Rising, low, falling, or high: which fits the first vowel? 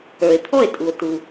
low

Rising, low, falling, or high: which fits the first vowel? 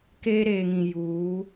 high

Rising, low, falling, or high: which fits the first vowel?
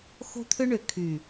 high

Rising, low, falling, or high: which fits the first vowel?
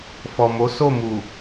low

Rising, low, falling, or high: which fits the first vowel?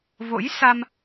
rising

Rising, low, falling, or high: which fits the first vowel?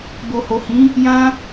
low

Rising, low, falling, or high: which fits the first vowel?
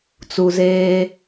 low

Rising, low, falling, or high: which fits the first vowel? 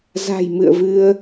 low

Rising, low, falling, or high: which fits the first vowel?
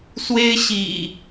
high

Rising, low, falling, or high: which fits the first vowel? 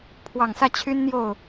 low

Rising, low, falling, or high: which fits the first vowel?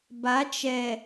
rising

